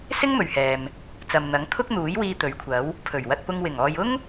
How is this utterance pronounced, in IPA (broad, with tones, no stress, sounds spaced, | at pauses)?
s ɪ˥ ŋ m ɵ˨ ɥ h ɛː˨ m | t͡s ɐ˨ m n̪ ɐ˨˥ ŋ t̪ʰ ʊ˥ k̚ n̪ uː˨˥ j w iː˧ t̪ ɵ˨˥ ɥ kʷʰ ɐ˨˥ w | pʰ ɵ˨˩ ɥ w ɐ˧ t̚ p ʊ˧ ŋ w ɪ˨˩ ŋ ɔː˨ j ʊ˥ ŋ